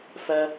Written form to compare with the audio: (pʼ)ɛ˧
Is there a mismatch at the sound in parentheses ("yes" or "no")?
yes